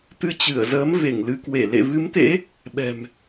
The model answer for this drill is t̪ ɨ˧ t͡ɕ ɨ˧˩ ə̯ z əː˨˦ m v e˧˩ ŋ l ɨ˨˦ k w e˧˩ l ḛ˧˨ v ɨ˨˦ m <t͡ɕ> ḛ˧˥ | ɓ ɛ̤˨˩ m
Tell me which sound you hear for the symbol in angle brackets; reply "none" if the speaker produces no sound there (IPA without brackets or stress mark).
t̪